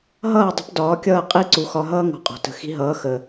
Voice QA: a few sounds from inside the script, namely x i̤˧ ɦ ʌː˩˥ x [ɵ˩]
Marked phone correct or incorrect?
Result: incorrect